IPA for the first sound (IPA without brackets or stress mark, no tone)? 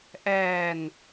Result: ʔ